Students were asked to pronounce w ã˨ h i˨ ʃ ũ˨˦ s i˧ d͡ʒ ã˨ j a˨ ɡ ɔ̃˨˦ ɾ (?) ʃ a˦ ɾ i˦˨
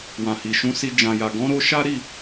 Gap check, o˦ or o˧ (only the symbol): o˧